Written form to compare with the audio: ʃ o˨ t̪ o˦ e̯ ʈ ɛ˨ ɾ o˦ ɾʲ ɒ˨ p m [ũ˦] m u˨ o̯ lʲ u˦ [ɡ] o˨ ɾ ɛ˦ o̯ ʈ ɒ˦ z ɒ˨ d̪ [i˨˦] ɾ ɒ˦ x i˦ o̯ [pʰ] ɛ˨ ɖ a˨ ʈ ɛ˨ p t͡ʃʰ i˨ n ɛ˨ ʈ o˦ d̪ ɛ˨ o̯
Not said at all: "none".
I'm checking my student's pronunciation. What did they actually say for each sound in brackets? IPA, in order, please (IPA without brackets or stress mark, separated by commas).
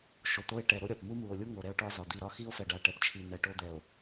u˦, ŋ, i˦˨, f